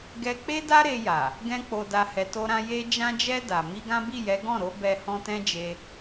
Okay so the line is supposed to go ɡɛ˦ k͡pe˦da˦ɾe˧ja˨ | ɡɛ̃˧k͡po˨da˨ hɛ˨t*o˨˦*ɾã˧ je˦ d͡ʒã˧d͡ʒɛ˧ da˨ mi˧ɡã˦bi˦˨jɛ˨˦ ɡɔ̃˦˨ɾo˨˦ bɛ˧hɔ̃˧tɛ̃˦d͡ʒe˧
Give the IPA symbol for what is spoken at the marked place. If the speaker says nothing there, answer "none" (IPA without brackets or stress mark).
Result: o˧